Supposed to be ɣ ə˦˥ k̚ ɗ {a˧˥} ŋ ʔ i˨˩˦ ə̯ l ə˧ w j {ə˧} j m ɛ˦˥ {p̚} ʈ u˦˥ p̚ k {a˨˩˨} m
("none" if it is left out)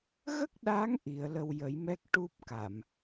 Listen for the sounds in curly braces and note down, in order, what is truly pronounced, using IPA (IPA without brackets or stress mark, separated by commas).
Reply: a˧˥, ə˨˩˦, k̚, a˨˩˨